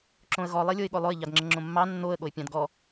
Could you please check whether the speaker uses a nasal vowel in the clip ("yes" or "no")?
yes